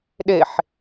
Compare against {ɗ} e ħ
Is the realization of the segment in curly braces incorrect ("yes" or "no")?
no